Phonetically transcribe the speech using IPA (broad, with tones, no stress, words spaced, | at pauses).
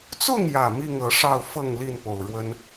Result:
t͡sʊ˥˨ŋjä˨˩ mi˥˨ŋɤ˨˦ʂɑ˥˨ʊ̯ fɤ˥˨ŋli˥˨npo˨˩ʊ̯ ɻwə˦n